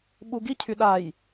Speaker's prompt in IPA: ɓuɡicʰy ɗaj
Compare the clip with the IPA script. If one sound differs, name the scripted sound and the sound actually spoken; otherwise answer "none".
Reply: none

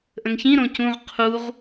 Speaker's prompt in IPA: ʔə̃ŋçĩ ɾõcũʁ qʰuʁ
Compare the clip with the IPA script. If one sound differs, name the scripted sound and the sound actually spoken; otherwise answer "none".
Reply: none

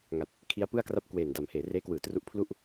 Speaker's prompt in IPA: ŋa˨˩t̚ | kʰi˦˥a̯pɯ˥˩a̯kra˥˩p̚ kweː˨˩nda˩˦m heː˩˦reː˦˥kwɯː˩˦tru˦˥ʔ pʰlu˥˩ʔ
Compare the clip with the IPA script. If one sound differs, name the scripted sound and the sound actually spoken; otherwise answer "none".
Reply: none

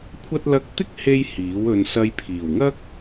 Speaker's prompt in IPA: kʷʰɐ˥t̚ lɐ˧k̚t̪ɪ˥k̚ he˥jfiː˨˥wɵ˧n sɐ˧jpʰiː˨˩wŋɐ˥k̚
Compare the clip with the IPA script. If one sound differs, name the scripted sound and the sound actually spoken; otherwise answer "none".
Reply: f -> h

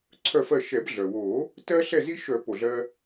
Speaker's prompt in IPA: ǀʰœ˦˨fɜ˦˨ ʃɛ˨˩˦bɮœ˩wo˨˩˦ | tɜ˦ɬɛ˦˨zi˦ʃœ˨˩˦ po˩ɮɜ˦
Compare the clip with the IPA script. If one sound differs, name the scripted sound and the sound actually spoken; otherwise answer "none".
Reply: none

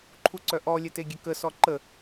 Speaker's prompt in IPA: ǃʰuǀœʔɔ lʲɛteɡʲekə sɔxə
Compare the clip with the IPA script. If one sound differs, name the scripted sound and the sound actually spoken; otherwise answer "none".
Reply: x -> ǃ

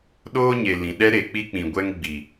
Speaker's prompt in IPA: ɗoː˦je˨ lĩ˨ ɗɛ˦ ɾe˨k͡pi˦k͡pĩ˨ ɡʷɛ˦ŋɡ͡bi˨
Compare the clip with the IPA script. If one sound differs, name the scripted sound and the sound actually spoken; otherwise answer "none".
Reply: j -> ɲ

